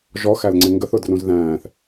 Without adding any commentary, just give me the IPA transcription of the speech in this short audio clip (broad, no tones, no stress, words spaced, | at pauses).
ʒɔxælŋ͡ǀɪ ŋɡəθʊ drũzðæ̃ːθ